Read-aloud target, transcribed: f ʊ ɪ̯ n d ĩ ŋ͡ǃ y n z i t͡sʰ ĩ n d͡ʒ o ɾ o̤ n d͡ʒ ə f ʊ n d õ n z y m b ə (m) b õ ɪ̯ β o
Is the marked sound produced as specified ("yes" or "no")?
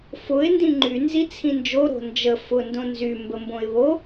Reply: yes